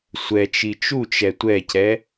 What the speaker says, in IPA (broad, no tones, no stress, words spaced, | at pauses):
sʷɛt͡ʃi t͡ʃut͡ʃɛ tʷɛcɛ